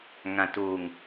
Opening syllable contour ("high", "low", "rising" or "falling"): low